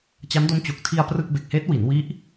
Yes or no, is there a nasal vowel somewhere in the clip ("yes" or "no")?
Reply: no